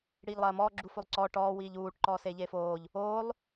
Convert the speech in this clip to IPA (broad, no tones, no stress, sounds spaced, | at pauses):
ɽ iː ʎ lˠ ɐː m ɔː ɡ͡ǁ u f o lˠ ǀ ɔː ʈ ɔː w iː ʎ uː ʈ ǃ ɔː s eː ʎ eː f oː ʎ | oː lˠ